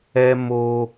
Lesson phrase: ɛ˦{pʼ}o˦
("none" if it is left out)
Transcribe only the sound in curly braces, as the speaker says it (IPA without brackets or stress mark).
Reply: m